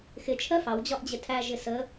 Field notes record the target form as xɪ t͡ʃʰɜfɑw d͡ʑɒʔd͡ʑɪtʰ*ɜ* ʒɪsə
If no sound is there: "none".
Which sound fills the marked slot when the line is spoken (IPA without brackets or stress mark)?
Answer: æ